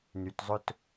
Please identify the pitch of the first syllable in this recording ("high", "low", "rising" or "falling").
low